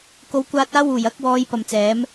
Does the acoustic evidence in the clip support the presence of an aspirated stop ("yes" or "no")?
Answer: no